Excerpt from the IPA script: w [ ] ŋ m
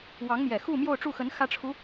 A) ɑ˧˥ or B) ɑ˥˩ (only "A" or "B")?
A